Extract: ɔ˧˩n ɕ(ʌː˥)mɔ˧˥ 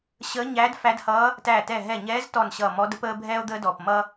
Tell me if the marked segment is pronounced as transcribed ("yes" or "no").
no